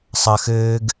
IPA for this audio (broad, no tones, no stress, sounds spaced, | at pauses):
sˤ ɐ x ɘː ɡ